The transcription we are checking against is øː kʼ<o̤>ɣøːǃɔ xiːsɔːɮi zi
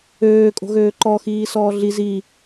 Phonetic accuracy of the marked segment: correct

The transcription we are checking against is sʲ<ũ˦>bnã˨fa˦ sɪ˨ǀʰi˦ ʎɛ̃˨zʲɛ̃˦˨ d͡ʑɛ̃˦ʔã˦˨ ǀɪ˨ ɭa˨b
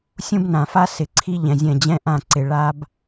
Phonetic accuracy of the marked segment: correct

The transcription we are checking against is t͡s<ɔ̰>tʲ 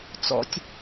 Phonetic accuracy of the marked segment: correct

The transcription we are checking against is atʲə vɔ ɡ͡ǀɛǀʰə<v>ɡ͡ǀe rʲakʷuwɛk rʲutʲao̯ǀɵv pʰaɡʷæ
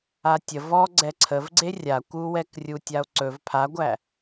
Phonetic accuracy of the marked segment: correct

